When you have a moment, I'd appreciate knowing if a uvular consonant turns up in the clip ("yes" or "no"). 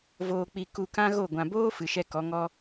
no